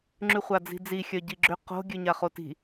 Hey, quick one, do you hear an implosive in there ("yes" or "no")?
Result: no